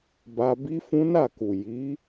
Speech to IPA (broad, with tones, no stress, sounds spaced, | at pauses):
b a˧ b i˦ f ũ˦ n a˦˨ k u˨ j i˨˦